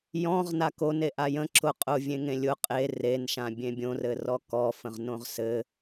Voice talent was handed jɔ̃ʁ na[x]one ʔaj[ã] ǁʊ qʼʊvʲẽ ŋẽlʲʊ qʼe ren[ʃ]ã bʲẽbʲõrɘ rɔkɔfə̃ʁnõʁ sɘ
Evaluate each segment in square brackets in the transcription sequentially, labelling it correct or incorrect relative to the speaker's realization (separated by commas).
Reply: incorrect, incorrect, correct